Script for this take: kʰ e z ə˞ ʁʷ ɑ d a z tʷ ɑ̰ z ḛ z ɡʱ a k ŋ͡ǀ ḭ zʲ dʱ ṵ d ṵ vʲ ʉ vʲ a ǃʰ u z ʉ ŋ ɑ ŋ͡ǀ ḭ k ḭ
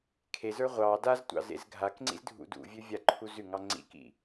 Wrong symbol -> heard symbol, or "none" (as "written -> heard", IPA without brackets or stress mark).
zʲ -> z